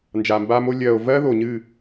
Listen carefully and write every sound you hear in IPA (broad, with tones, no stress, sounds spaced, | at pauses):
n d͡ʒ aː˨ m b aː˧ m o˧ lʲ ɜː˨ o̯ v ɜ˦ ð o˨ ɲ ɨ˦˨